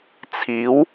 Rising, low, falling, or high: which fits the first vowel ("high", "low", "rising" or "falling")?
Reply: rising